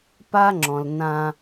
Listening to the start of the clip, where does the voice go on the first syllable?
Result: high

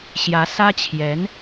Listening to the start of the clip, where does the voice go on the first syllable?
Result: rising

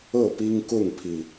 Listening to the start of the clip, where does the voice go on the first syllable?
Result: falling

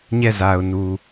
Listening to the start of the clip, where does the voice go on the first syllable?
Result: falling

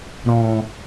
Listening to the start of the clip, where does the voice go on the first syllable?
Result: low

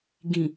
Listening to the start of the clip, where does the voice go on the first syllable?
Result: low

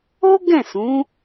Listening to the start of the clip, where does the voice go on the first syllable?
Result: high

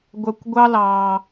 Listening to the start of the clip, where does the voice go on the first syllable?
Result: low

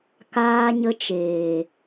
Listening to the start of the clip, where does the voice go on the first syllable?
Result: high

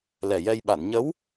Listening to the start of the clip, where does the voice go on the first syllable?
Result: low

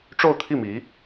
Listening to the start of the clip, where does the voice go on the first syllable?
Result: falling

